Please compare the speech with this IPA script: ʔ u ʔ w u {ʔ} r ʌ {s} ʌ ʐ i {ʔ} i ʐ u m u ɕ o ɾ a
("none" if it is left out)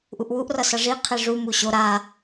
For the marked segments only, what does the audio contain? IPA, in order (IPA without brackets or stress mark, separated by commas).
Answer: ʔ, s, qʰ